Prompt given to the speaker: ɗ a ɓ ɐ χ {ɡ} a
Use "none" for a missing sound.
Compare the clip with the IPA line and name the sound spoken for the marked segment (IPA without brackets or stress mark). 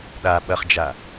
d͡ʒ